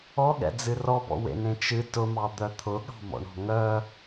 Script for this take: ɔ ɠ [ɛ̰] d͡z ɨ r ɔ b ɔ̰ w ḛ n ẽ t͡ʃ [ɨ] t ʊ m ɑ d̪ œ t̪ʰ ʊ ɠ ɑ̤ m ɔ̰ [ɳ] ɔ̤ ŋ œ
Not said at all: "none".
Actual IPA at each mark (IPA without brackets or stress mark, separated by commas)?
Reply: ɛ̰, ɨ, ɳ